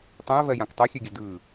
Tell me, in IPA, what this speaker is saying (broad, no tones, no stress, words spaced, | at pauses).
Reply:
tˤœ̃ɐ̯vɜjãk tˤœxʲøɡʲə dɯ